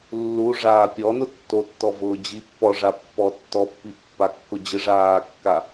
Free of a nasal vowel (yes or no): yes